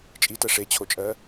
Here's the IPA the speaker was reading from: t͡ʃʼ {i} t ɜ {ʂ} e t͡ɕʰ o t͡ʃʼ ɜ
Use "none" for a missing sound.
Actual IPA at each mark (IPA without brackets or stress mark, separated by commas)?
i, ʂ